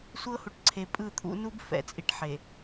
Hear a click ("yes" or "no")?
yes